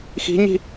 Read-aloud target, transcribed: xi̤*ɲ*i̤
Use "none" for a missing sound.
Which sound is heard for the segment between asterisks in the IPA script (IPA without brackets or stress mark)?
ɲ